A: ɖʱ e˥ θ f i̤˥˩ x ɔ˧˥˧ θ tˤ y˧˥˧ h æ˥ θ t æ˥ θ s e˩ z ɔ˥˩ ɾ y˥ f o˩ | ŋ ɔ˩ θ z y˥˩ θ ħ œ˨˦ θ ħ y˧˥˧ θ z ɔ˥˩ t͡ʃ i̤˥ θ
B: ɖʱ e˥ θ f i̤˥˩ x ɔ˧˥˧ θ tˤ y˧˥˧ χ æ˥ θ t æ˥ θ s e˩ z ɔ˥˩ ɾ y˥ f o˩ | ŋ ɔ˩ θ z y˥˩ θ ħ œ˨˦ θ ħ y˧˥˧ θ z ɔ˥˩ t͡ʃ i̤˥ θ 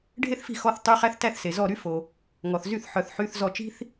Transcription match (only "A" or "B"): B